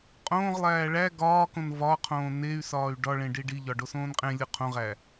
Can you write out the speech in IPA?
qʼ õː ʁ lˠ æː ɭ æ ɡ ɒː k õ n v ɒ qʰ õː n e y̯ s ɒː y̯ ɖ ɒ ɭ ẽ ɖ i ɖ i ʎ ɒ ɖ o s õː n qʼ ẽ lʲ o qʰ õ ʁ æ

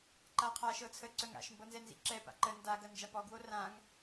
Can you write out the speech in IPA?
ǃ a qʰ a ʃ ɤ t͡sʰ ə ǀ œ ŋ a̰ ʃ m b ɤ n z ɛ n z ḭ ǁ ɛ p a̰ ǃ ə n d a ɡ ɐ n d͡ʒ a p ɔ ɡ w o r ã ŋ

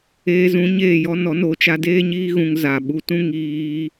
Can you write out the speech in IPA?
eː˧ z ũ˨˦ ɲ eː˦˨ j ɔ˦ n ɔ˨˦ n o˧ t͡ʃ a˦ d eː˦ ɲ iː˦ ɣ ũ˧ ŋ z aː˨ ɓ u˧ t ũ˦ ŋ iː˦

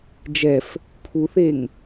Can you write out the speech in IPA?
d͡ʒ ɛ f | pʰ u θ e ŋ

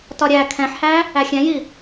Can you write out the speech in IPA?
t ɒ ɾʲ æ kʰ ɛ̃ ħ h æ | æ xʲ ɛ̃ j i

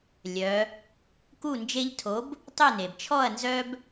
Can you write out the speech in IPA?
lʲ œ˩˧ | k u˥˩ n d͡ʒ e˦ ʎ tʰ o˨˥ b | tˤ ø˥˩ n e˩ b t͡ʃʰ ɔ˥˩ ɐ̯ n z œ˦ b

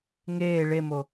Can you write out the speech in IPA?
ŋ eː ɭ e m o

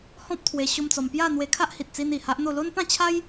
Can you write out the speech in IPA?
h ɔ̃˦ p̚ t̪ʰ w e˧ ɕ o˦ m t͡s ɔ˧ m p j a˥˧ n̪ w e˧ kʰ a˦ ʔ h i˨ t̚ t͡s i˧ n i˨˩ h a˦ ʔ n̪ o˥˧ l o˦ n p ã˥˧ t͡ɕʰ a˦ j

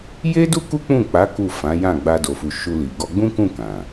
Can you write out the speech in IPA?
j e˦ d u˦ k u˦ k͡p ũ˦˨ k͡p a˨˦ k u˦˨ f ã˨˦ j ã˦˨ ɡ͡b a˧ d o˨ f u˨ ʃ u˧ l i˨ ɡ ɔ˧ ɡ͡b ũ˦ k ũ˦˨ k ã˨

